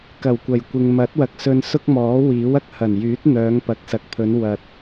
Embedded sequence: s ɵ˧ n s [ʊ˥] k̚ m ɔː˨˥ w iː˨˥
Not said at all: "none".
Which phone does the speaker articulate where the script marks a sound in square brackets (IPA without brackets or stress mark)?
ʊ˥